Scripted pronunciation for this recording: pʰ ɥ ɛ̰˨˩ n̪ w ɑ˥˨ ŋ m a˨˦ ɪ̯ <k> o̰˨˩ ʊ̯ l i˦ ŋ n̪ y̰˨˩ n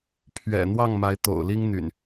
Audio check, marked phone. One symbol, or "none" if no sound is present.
t̪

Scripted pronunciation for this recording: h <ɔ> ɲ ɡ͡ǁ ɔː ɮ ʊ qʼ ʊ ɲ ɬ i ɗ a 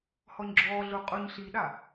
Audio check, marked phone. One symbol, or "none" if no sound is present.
ɔ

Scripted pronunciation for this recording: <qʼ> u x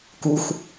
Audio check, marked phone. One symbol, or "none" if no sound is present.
k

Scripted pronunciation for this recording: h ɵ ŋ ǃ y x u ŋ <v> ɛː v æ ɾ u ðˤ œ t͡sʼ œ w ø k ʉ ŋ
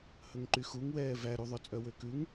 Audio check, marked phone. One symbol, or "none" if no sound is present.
w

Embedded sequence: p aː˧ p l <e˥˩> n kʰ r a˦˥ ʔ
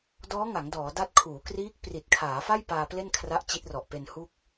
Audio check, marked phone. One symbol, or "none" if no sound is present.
e˥˩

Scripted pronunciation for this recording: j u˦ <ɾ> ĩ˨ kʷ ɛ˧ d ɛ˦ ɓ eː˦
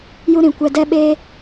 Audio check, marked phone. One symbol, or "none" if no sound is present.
ɾ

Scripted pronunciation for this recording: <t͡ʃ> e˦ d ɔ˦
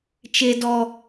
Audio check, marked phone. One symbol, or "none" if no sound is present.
t͡ʃ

